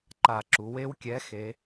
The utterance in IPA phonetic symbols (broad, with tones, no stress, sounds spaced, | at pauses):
ǃ a˧˩˧ ǁ u˩˧ w e˦ w kʲ ɛ˨˥ x e˩˧